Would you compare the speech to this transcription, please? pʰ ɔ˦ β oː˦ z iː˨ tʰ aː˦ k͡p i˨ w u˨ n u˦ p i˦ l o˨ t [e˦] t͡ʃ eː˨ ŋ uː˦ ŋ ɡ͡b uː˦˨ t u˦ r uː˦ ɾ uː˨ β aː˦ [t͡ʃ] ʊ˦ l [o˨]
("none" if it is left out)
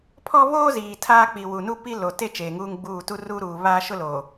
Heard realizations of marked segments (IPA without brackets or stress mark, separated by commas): e˦, ʃ, oː˨